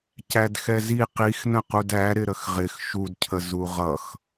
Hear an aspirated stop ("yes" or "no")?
yes